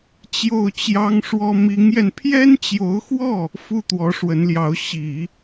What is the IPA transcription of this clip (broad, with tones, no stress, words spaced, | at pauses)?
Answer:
t͡ɕjo˥˩ʊ̯t͡ɕjɑ˥ŋʂwɔ˥ mi˧˥ŋjɛ˧n pʰjɛ˥nt͡ɕjo˧˥ʊ̯xwɔ˥˩ | fu˥˩ t̪wɔ˧˥ʂwə˧˥nljɑ˧˥ʊ̯ ɕi˨˩˦